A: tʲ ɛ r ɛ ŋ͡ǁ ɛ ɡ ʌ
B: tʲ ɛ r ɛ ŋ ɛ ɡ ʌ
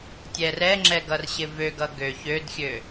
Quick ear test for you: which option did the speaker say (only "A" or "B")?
A